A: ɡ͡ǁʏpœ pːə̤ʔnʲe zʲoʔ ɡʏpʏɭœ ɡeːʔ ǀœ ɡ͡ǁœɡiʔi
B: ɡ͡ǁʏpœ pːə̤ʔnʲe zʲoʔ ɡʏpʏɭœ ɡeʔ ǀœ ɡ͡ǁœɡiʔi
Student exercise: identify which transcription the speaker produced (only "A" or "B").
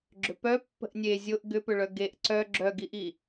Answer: B